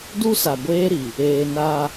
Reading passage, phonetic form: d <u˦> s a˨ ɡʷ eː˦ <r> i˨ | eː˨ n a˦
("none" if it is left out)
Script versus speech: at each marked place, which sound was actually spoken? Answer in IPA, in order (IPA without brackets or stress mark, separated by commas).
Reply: u˦, ɾ